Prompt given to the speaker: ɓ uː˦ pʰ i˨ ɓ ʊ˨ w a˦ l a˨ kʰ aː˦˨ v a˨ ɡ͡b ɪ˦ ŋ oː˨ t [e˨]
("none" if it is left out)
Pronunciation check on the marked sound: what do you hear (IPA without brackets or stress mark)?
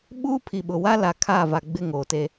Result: e˦